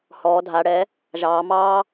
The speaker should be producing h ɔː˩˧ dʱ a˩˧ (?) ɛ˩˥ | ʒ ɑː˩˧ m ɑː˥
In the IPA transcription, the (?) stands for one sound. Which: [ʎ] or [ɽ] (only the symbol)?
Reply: ɽ